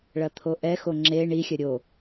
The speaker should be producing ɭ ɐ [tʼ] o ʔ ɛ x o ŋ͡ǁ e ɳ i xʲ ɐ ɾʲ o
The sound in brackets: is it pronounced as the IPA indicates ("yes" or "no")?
no